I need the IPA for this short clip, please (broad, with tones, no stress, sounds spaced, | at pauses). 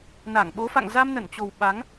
n a˧˩ ŋ ɓ o˨˦ f a̰˧˨ ŋ z a˧ m n ə˧˩ n t͡ɕ o˨˩ w ɓ a˨˦ ŋ